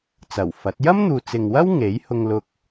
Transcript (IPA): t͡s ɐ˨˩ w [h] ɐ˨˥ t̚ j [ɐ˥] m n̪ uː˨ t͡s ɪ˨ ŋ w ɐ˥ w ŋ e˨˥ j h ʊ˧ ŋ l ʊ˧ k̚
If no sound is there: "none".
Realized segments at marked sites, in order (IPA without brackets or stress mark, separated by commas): f, ɐ˥